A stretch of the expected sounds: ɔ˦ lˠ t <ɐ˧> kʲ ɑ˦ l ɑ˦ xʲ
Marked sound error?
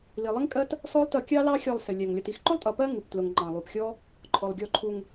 yes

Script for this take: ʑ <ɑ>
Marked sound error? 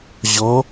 yes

